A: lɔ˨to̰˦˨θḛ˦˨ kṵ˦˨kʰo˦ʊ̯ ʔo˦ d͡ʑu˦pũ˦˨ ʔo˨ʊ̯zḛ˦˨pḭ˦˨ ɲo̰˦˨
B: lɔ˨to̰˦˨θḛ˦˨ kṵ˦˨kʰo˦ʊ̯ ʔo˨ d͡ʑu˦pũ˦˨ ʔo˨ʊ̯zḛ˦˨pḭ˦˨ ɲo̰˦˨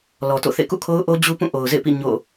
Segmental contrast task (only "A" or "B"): A